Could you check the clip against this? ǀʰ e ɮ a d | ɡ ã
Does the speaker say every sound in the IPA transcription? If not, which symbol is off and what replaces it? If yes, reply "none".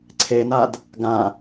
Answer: ɮ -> n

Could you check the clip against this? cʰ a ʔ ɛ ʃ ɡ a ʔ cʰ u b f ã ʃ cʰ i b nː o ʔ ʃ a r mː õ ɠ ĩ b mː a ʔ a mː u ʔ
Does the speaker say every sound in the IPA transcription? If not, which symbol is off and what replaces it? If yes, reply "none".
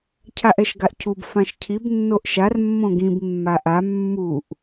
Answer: ɠ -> ɡ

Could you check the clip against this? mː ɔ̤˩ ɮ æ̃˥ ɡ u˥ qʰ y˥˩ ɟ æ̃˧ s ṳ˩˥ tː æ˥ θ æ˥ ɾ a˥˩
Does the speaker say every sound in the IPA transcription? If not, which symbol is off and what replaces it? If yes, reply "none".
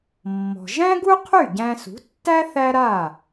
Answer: ɮ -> ʒ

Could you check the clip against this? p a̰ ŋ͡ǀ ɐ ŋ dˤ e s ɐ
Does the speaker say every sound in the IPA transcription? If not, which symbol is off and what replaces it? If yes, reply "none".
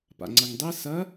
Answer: none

